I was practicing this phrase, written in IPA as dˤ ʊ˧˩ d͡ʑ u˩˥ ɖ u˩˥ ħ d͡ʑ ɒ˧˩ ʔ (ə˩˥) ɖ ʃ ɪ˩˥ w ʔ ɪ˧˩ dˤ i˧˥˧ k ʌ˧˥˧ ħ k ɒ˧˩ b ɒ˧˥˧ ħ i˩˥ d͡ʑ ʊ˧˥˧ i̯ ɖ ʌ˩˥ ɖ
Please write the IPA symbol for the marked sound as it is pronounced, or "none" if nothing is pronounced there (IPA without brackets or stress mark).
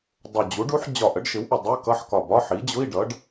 ə˩˥